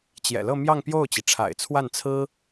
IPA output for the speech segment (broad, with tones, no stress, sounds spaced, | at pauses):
t͡ɕ j ɛ̰˨˩ l ɤ˥˧ m j ɑ˥˧ ŋ p j o˥˩ ʊ̯ t͡ɕ i˩ ʈ͡ʂʰ a̰˨˩ ɪ̯ t͡sʰ w a˥˩ n t͡sʰ ɹ̩˥